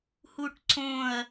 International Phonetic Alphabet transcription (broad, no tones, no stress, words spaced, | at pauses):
huʈǀõɐ̯